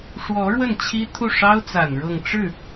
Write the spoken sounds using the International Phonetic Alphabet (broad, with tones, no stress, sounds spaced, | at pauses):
ʂ w ɔ˧˥ ɻ w ə˥˩ n t͡ɕʰ i˥ t̪ʰ u˥˩ ʂ ɑ˥ ʊ̯ t͡s a˨˩ n ɻ ɤ˥˧ ŋ ʈ͡ʂ ɻ̩˥˩